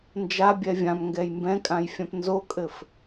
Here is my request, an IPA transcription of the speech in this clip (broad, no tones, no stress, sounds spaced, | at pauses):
n d͡ʒ a bʲ ɛ vʲ ã m ŋ ɡ ɛ j m b ɛ̃ kʼ ã j fʲ ã p n z o kʼ ɘ f